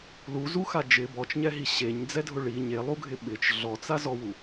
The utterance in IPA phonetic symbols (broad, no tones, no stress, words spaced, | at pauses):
luzuxa d͡ʒɪ bɔt͡ʃɲɛɦi ɕeɲd͡zɛdʱʊ ɭi ɲelˠuɡʱɪ ɓɪt͡ʃ ɮɔt͡sazɔwu